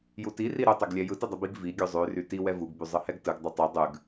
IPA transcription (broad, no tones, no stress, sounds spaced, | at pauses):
j u t i r i ɾ u tˤ ø ɡ lʲ ɛ j ɯ t ɯ dˤ ɛ b i ɡ v i ɡʲ ʉ zˤ ʉ r y t i w ɛ v u ɡ b y zˤ ɯ h ɛ ɡ t ɯ ɡ dˤ ʉ tˤ u dˤ ʉ ɡ